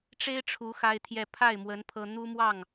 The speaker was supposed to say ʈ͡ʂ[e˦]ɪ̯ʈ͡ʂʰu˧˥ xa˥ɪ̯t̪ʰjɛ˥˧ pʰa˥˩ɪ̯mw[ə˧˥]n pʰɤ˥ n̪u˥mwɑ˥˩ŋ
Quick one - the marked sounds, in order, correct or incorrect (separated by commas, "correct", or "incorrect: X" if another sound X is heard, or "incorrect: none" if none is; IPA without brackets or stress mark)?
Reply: incorrect: e˥, correct